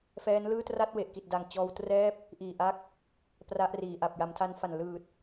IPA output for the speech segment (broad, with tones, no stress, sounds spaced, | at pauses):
f ɛː˦˥ n l ɯː˥˩ t r a˥˩ t̚ w e˨˩ ʔ k i˨˩ t̚ d a˨˩ ŋ t͡ɕ ɔː˧ w t r ɛː˥˩ p̚ | ʔ iː˨˩ ʔ a˦˥ k̚ | p r a˦˥ ʔ r iː˨˩ ʔ a˨˩ p̚ j a˩˦ m tʰ a˧ n f a˨˩ n l ɯː˨˩ t̚